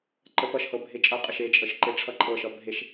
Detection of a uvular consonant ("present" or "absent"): present